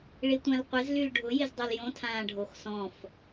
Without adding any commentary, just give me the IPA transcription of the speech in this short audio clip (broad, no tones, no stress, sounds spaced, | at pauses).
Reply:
ɭ i tʷ ã l qʷ ɪ z l y l ɖʱ ʊ j ɪ z dˤ e l j õ tʰ ãː ɖʱ o x s ɔ̃ f